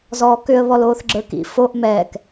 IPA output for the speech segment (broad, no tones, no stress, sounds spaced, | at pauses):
z ɔː k ʏ ə̯ β ɔ l oː θ ɡ͡ǁ ə˞ k ḭ f o ʔ m ɛ k